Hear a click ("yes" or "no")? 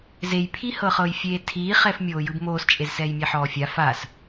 no